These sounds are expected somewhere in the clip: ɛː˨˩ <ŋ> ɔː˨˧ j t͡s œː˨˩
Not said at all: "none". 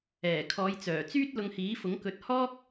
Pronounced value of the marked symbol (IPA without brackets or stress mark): kʰ